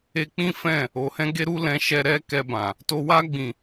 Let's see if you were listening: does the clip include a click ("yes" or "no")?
no